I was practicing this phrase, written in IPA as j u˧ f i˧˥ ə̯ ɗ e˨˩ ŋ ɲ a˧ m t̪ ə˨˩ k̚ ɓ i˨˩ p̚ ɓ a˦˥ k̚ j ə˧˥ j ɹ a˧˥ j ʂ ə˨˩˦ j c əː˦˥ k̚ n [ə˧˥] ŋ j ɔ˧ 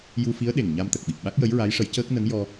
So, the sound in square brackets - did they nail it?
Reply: yes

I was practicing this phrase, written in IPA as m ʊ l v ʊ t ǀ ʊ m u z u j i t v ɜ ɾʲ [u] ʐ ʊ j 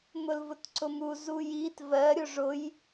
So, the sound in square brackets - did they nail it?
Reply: no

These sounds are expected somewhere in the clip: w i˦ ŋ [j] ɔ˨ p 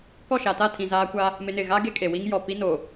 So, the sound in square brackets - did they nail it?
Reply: yes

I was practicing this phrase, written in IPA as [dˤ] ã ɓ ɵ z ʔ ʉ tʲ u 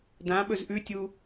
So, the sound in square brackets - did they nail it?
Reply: no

